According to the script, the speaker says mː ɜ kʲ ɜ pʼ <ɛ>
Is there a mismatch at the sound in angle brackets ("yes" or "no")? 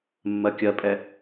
no